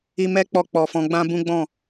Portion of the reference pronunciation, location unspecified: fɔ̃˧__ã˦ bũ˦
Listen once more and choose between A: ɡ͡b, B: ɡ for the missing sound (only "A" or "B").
A